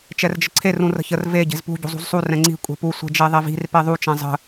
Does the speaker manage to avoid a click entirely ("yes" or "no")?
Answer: no